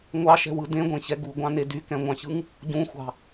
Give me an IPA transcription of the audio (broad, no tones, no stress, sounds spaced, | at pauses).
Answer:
ŋʷ ɑ ʃ ɛ̤ w ɯ d ẽ ɡʷ ẽ ç ɛ ɡ u ɡʷ ɑ̃ n e d y k ɛ̃ ŋʷ ɑ̃ ç ɯ ŋ | ɟ ũ xʷ ɑ̤